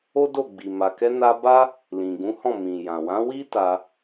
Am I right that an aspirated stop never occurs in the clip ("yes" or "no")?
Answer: yes